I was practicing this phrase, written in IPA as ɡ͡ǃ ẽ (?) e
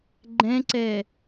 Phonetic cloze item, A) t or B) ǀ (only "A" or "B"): B